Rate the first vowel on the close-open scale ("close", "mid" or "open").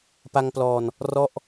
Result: open